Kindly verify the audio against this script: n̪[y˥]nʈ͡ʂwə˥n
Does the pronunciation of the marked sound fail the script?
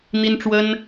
yes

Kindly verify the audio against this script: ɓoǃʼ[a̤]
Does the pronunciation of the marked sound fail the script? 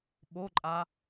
yes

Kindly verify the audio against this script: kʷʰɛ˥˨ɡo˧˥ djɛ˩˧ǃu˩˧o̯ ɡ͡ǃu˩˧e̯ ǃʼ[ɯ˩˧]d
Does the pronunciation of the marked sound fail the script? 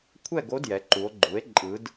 no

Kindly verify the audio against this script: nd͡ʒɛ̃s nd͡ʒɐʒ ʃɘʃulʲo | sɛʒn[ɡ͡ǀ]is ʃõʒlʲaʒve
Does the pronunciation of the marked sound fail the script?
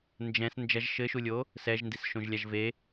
yes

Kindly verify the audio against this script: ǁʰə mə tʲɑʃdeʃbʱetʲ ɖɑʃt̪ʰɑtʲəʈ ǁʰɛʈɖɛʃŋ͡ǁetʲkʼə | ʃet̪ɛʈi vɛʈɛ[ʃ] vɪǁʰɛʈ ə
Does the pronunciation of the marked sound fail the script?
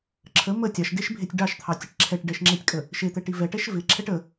no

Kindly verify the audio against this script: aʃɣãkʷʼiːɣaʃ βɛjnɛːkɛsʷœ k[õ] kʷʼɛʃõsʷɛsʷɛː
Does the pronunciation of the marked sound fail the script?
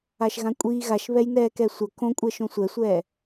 no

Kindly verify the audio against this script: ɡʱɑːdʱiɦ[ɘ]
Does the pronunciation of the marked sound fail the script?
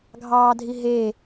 yes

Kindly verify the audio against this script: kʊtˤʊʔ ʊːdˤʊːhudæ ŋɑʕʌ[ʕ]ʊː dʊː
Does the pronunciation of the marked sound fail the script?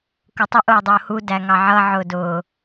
no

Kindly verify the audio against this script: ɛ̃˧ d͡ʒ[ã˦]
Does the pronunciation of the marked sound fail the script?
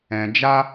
yes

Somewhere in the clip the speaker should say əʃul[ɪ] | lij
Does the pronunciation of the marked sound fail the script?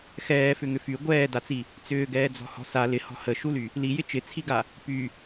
yes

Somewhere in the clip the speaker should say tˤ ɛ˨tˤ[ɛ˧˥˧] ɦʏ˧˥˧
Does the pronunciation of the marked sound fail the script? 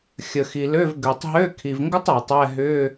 no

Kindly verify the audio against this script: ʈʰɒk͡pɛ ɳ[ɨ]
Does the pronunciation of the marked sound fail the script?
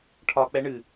no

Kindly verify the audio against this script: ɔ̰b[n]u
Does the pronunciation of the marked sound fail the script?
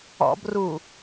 yes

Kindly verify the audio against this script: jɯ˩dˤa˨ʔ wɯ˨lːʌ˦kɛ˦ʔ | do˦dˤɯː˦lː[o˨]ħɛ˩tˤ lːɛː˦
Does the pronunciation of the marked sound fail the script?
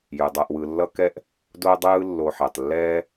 no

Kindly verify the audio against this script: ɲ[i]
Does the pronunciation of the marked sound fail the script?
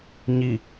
no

